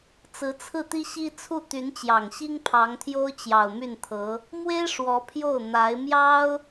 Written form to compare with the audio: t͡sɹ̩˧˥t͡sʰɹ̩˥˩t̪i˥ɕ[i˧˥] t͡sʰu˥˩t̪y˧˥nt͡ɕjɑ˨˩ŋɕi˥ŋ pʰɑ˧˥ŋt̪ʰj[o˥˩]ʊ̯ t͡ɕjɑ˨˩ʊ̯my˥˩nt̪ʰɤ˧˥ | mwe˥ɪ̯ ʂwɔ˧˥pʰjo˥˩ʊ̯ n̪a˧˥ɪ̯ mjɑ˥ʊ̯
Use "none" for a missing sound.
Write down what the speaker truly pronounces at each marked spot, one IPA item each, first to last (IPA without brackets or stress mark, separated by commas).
i˥, o˥